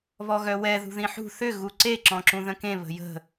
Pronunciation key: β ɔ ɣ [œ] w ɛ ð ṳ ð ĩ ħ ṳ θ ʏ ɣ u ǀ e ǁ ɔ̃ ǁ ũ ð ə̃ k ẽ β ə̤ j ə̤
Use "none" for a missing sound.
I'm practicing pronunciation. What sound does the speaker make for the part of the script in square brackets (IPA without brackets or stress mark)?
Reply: œ